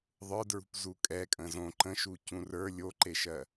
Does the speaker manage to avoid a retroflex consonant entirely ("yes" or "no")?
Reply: yes